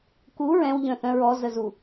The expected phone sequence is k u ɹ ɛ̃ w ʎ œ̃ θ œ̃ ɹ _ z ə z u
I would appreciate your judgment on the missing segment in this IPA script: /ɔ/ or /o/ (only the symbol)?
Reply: ɔ